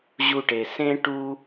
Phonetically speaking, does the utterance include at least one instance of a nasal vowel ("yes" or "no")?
yes